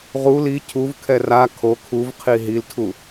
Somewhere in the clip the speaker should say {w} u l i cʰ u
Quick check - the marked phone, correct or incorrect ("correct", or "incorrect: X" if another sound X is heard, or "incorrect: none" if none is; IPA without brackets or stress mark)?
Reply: incorrect: ʁ